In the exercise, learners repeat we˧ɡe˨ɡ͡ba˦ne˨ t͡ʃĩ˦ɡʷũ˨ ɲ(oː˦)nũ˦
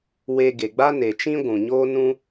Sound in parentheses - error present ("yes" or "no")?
no